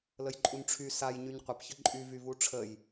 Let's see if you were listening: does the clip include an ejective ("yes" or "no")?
yes